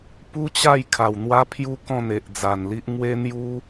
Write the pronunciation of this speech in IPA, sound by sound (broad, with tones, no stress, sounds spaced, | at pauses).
p u˦ t͡ɕ a˥˧ j kʰ a˨˩ w n̪ w a˦ pʰ j u˦ k ɔ̃˥˧ n̪ e˨ ʔ d͡z a˨˩ n l i˦ ʔ ŋ w e˦ n̪ j u˦